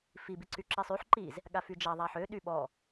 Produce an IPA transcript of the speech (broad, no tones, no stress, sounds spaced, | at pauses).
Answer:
f i b i ǀ y ǁ i sˤ y ħ ǃ i z | ɠ a f y d͡ʒ a ðˤ a ħ ø ɗ y ɓ ɔ